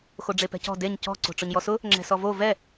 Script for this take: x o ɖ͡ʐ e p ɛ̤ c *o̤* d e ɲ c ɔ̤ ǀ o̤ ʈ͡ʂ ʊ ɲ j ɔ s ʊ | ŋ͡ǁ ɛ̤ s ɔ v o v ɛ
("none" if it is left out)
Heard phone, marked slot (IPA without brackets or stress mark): ɔ̤